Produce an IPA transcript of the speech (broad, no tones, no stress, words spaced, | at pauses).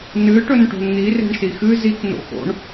nɨ ʈɵnʈo̤nn̪i re̤ɳsixɨ zik no̰xo̰ɳ